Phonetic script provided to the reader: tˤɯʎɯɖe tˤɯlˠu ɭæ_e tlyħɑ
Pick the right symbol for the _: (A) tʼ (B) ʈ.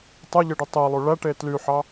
B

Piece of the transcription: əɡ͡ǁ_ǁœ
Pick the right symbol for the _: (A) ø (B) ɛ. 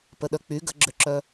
A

